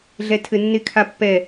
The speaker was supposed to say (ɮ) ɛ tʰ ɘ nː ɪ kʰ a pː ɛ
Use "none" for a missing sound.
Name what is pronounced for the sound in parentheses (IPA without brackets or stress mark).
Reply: ɮ